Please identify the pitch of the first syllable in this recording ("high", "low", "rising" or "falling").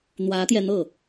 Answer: rising